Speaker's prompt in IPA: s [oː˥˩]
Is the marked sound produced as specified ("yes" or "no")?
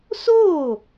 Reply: yes